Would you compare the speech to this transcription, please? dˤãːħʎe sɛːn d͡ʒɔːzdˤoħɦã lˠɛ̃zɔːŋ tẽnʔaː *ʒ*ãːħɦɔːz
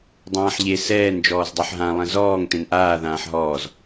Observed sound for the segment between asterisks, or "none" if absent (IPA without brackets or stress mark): ð